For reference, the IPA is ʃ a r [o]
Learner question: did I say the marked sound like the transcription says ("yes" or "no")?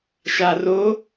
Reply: yes